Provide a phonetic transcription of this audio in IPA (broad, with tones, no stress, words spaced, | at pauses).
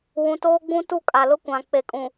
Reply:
wũ˨toː˦ɡ͡bũ˦ tu˦kʼa˨lʊ˦kʷã˨ k͡pe˨kʼũ˨